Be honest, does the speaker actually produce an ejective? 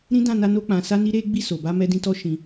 no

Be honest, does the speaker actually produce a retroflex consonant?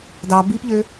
no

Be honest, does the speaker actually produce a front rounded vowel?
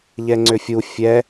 yes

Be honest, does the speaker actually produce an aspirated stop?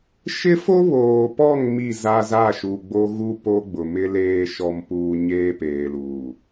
no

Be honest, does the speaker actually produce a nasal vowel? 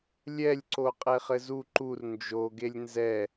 no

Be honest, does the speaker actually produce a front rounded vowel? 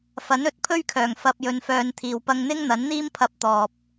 yes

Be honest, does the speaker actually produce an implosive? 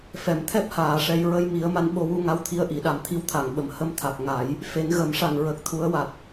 yes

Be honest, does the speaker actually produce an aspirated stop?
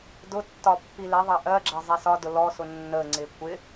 no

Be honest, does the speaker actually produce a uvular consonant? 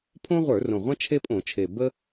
yes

